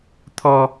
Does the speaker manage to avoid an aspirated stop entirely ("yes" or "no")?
no